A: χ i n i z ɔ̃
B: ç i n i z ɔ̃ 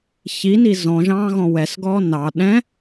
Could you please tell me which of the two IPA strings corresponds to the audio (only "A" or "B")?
B